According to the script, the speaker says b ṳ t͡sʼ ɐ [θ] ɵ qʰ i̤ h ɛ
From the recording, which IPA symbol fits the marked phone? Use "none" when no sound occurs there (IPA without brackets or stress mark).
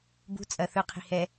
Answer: θ